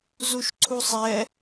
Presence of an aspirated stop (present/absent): present